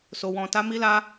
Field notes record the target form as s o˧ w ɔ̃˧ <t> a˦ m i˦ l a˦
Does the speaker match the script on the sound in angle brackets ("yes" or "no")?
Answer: yes